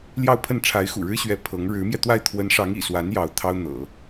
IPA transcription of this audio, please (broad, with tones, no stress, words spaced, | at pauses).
ljɑ˥˧ʊ̯pʰə˥˩n ʈ͡ʂʰa˧˥ɪ̯xṵ˨˩ɻɻ̩˥ɕɥɛ˧˥ pʰɤ˧˥ŋ ɻɻ̩˧˥mjɛ˧t̪wa˥˩ɪ̯ t̪ʰwə˧˥nʂɑ˧˥ŋ ḭ˨˩swa˧˥n jɑ˧˥ʊ̯t̪ʰɑ˥ʊ̯ n̪ɤ̰˨˩˦